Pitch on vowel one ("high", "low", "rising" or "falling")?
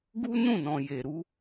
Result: high